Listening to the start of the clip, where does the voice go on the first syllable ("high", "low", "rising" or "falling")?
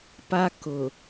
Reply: high